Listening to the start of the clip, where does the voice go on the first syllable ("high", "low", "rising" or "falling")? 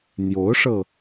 rising